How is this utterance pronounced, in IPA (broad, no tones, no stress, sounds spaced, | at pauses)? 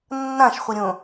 nː ã ʃ χʷ ə ɾʲ õ